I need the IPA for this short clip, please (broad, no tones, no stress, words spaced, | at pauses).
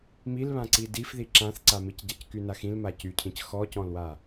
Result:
milβãǀi difði ǁãθǀa micɟackyna xĩlma cycʰĩc xɔcɔ̃lwa